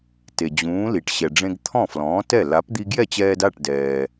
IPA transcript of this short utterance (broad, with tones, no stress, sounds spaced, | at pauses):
t e˩ d͡ʑ ũː˩˥ l i˩ ʈ ɕ ɛ˩ ɖ͡ʐ ẽ˧ ɡ t̪ʰ ɔ̃˥˩ f l ɔ̃ː˩˥ t ɛ˥˩ l a˩˥ p d̪ i˧ ɡ j ɛ˥˩ t͡ɕ ɛː˧ d a˥˩ ʈ d ɛː˩